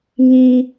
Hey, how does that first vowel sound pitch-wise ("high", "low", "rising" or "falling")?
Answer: high